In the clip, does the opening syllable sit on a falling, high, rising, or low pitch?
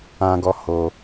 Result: high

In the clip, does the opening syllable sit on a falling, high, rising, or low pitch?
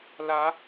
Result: rising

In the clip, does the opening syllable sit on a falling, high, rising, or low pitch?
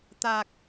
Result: low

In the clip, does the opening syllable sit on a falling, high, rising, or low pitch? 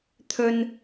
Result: high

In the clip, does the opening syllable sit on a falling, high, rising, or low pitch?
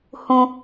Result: high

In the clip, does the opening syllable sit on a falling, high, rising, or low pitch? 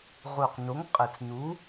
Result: low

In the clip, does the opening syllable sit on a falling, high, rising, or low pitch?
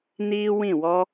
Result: high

